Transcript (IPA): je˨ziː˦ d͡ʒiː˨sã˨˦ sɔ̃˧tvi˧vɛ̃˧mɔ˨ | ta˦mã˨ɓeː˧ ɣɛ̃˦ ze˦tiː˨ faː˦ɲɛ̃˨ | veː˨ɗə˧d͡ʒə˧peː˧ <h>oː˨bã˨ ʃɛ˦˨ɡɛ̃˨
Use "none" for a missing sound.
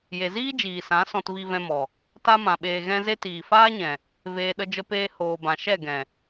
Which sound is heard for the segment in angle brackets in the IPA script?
h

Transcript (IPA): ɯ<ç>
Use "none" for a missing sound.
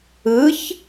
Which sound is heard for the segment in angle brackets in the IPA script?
ç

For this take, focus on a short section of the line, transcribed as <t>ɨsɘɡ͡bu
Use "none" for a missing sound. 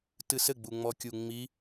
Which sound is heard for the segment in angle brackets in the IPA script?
t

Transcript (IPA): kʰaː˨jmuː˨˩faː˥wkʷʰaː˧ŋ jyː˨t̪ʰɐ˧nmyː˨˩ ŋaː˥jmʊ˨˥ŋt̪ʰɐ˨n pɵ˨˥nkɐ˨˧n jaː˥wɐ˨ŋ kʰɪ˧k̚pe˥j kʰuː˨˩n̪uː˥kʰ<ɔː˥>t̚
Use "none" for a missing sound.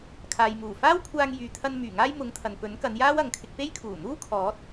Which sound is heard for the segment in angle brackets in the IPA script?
ɔː˨˥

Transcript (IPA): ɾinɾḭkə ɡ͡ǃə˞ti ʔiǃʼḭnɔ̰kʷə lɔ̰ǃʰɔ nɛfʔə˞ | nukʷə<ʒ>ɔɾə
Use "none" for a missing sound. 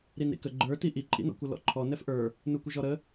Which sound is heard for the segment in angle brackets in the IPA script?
ʒ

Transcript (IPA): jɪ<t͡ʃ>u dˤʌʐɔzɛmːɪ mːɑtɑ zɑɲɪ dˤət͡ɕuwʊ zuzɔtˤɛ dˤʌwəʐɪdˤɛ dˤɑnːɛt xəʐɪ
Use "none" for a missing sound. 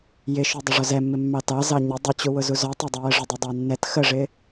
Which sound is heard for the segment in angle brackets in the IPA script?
ʃ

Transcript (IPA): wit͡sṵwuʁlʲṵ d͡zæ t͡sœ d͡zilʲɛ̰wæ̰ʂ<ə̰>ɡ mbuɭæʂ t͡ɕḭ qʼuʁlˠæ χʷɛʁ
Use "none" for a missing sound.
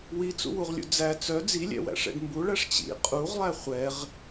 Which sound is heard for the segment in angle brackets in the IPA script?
ɛ̰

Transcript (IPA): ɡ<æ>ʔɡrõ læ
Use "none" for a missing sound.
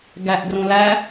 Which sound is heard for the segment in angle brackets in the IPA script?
æ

